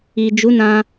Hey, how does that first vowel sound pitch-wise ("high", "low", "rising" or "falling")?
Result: low